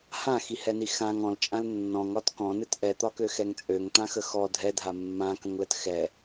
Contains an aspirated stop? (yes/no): no